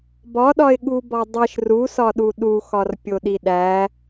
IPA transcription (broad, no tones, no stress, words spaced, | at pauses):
bɒɗɒɪ̯ɠubɒ dˤiʃ rusɒɗu ɗuxɒrpʲoɗi ɗæ